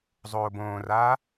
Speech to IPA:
zˤ oː b õː r aː

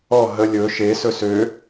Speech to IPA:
ɔ ɦ ə lʲ ɵ ʃ e s ɵ s ø

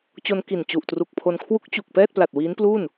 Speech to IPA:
t͡ɕ o˧ n k i˨˩ n t͡ɕ u˨˩ ʔ t r u˨˩ k̚ pʰ o˧ n kʰ w u˦˥ k̚ t͡ɕ u˨˩ k̚ p ɛː˥˩ t̚ p l a˨˩ t̚ w iː˦˥ n p l u˥˩ n

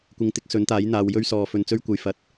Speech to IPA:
kʷ ɪ˨˧ ŋ t̪ ɪ˨˥ k̚ s ɵ˨˥ n t̪ aː˨˥ j n̪ aː˨˧ w j ɵ˥ ɥ s ɔː˨ f ɵ˧ n t͡s ɵ˥ ɥ kʷ ɐ˨˧ j f ɐ˨˥ t̚

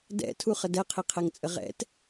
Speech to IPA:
d ɛ̰ tʰ u χ ə d ɛ qʰ i qʰ ɛ ŋ t͡sʼ ə ʁ ɛ̰ t

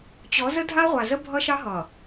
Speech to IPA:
t͡ɕ ɔ˨˦ z ə˦ dʱ a˦ ʁʷ a˨ z ə˦ bʱ ʌ˦ ʃ ɑ˦ ɦ ʌ˨

